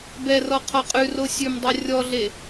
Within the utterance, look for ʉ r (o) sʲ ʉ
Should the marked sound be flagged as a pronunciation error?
no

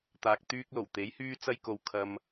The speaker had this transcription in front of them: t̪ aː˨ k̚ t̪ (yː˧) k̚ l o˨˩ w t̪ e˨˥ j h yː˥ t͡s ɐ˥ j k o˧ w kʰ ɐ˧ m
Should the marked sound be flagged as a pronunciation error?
no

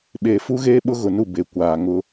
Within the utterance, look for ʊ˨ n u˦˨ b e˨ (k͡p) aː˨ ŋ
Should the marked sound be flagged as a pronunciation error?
yes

